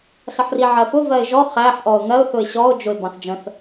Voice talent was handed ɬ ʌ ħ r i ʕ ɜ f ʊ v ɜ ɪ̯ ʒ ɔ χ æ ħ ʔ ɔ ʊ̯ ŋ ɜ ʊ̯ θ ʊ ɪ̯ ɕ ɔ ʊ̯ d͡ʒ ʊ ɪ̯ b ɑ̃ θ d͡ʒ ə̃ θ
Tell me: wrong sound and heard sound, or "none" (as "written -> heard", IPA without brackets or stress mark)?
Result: none